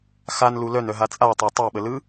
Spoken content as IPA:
x a n l u l œ n œ ɦ a t͡sʼ a tˤ a tˤ e ɓ ə l ɯ

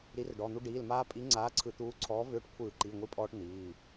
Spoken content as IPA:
ɾ i˨˥ r ɖ ɔ˩˧˩ n̪ u˦ ɖ iː˩˧˩ l m aː˦ pʼ i˨˥ ŋ͡ǀ aː˨˥ ǀʰ ɯ˧˩˧ t̪ uː˨˥ ǀʰ ɔː˨˥ v ʏː˨˥ ʈ kʷʰ ɯː˧˩˧ ǃ i˩˧˩ ŋʷ i˦ pʼ ɔː˦ ʈ n̪ iː˩˧˩

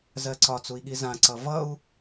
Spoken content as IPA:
z ɜ ǀ ɒ t͡s u i̯ ɠ i z ã ǀ ʌ v ʌ u̯

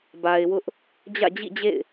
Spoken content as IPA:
b a˨ ɪ̯ w ʊ˦ ʔ | d͡ʑ ä̰˦˨ d͡ʑ ḭ˦˨ d͡ʑ ḛ˦˨ ɪ̯

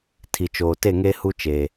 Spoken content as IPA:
tʰ i˨ t͡ʃ oː˨ t e˦˨ ŋ e˦ h u˦ t͡ʃ eː˨

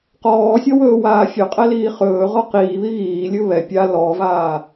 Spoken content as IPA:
q ɔː sʲ ɔ w ɵː w aː fʲ ɵ qʼ ɛ l iː χ ɵː ʁ ɔ q iː β i ɣ iː lʲ ɵ β ɛ pʲ a l ɔ v aː

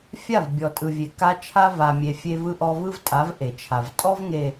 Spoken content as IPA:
fʲ a˦˨ v bʲ ɔ˨ tʼ ɯ˨ vʲ e˨ k a˦ t͡ʃʰ a˦ v a˨ mʲ e˨ fʲ e˦ v ɯ˦ ʔ ɔ˦ v ɯ˦ v tʼ a˨˦ v ʔ e˨ t͡ʃʰ a˨ v tʼ ɔ˦ v ŋ e˨

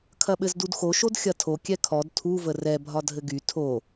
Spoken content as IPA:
kʰ ɐ ɓ ɘ z d u d x o ʃ o d xʲ ɐ tʰ o kʲ ɛ kʰ ɔ d tʰ u v ə r ɛ bʱ ɒ dʱ ɘ ɡ y tʰ o

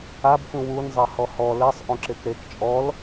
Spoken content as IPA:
a b k ũ w u n zˤ ɛ h ɔ h ɔ l ɛ sˤ ʔ õ ǁ e k ɾ e k t͡ʃʼ ɔ l

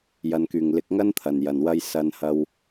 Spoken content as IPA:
j ɐ˨ n k yː˨˩ ŋ l ɪ˨ k̚ ŋ ɐ˥ n t̪ʰ ɐ˨˩ n j ɐ˨˩ n w ɐ˥ j s ɐ˨˧ n h ɐ˧ w

